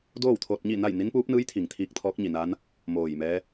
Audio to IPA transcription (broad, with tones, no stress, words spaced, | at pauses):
doː˥˨wt̪ʰo˧t̚ɲi˥˨na˥˨j ni˧˥npuː˧˥p̚nɯː˧˥jt̪ʰi˩ŋ t̪ʰiː˧k̚t̪ʰɔː˧˥k̚ɲi˩na˧˥n | moː˧˩jmɛː˧˥